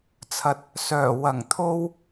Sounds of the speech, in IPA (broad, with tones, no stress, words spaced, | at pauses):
t͡sʰɐ˨t̚ | sœː˨˩wɐ˨˩ŋ t̪ʰo˧w